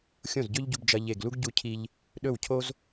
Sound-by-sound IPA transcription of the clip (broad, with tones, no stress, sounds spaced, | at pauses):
xʲ õ˥˩ z ɟ ɵ˥ ʎ ɟ u˧ b d͡ʒ ɐ˧ ʎ e˧˩ ɡ l u˥ ɡ ɟ u˧ cʰ i˧ ʎ | ɗ ɵ˥˩ w cʰ o˥ z